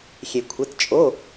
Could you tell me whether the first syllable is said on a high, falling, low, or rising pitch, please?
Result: low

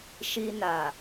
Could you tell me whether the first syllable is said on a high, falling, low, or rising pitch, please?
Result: high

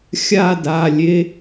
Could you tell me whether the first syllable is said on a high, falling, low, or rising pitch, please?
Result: falling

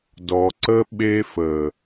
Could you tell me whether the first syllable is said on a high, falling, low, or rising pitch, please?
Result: low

